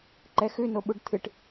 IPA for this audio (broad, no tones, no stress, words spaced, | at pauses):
ǃɛxʉnoɓuɖ t̪ʰɨʈ